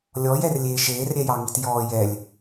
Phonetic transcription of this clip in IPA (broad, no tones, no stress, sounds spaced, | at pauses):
lʲ ɔ j ɛ r lʲ eː ʃ eː r ɾʲ ɛ j ɑ ŋ i t j ɔː j ɛ lʲ